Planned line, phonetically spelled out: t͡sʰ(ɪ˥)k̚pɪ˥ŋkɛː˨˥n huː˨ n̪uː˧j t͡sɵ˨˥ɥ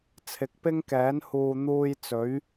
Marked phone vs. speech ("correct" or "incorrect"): incorrect